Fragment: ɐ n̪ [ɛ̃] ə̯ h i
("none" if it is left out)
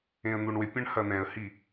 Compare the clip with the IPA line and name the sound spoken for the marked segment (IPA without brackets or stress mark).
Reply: ɛ̃